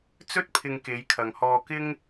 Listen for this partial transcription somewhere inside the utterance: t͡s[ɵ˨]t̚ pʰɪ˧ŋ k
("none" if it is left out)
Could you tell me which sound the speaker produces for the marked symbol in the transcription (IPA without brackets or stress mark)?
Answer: ɵ˥